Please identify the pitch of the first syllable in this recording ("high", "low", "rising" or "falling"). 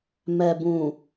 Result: low